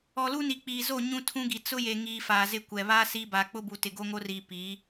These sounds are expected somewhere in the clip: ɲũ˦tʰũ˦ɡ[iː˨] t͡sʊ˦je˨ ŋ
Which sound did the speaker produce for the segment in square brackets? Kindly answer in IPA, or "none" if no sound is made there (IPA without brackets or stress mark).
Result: i˨